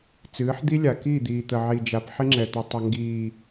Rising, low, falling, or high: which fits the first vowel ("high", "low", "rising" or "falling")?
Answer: rising